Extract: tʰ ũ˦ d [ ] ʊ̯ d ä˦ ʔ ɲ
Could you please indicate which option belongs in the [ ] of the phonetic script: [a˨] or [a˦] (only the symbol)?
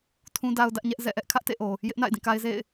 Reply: a˦